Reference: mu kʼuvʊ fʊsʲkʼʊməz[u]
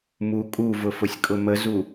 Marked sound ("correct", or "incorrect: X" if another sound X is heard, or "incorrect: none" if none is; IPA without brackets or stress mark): correct